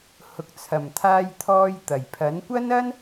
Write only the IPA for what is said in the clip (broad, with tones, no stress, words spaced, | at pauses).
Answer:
hʊ˨k̚t͡sʰɐ˨˩mt̪ʰaː˧jt̪ʰɔː˧j t̪ɐ˨˩jpʰɐ˨˥nkʷɐ˥n ɐ˥n